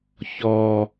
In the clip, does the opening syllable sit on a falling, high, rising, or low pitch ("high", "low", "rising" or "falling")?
low